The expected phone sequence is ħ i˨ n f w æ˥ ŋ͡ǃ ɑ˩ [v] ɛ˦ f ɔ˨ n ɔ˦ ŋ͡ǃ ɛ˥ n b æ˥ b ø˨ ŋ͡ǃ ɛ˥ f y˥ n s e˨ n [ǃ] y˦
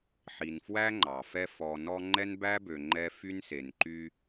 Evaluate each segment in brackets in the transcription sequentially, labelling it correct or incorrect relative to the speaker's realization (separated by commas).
incorrect, correct